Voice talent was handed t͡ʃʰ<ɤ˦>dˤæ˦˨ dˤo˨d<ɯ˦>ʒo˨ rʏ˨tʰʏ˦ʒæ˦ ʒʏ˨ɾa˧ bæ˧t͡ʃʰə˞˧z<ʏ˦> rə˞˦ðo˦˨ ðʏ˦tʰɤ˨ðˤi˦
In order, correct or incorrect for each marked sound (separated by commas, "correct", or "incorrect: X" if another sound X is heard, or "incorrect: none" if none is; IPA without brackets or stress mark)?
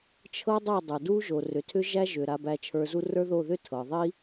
correct, incorrect: u˦, incorrect: u˦